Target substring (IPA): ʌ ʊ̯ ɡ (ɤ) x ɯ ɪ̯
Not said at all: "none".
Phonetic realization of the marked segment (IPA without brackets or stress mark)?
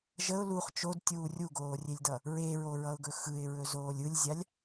ɵ